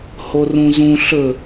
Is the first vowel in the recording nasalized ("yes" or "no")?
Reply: no